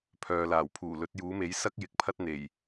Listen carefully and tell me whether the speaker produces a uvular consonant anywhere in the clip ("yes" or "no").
no